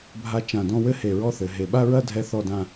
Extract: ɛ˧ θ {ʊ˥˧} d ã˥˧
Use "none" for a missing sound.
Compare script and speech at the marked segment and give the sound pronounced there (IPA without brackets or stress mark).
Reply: ɔ˥˧